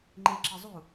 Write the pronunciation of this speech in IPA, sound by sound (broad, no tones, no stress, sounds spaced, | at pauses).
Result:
ŋ͡ǃ e ǁ ɪ zˤ u